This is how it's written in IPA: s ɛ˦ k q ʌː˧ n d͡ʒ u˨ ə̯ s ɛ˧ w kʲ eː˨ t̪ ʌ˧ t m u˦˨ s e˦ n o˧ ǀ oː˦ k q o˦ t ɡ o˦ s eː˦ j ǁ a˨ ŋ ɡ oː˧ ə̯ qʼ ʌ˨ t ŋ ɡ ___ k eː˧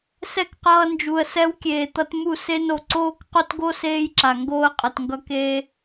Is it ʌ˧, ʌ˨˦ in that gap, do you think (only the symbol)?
ʌ˧